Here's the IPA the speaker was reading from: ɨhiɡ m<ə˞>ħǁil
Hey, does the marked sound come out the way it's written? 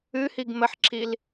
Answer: no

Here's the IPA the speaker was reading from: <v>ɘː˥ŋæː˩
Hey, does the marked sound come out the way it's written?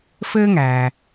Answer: no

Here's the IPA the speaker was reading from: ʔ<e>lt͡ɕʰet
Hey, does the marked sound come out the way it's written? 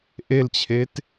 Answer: yes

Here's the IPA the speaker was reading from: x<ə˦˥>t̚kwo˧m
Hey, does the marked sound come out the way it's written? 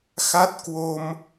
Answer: no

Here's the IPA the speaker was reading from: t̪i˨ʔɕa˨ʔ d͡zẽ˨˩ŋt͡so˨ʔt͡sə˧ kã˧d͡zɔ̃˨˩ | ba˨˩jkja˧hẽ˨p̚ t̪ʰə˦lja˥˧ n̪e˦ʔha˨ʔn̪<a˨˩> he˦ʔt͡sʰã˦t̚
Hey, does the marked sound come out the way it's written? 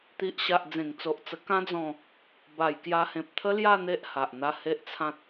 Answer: no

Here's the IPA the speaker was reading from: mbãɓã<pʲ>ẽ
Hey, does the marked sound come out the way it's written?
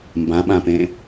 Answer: no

